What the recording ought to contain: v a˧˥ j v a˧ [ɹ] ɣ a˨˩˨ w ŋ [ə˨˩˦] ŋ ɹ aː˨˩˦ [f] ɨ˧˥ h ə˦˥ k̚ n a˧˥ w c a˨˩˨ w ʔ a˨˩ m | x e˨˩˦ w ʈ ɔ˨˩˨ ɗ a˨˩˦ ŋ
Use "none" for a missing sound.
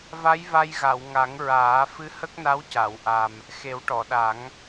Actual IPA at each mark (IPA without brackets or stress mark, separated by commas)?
j, a˨˩˦, f